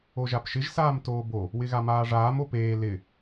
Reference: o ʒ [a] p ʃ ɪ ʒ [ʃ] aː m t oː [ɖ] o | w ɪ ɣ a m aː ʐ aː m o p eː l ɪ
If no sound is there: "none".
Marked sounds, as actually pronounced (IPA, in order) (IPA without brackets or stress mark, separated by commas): a, s, b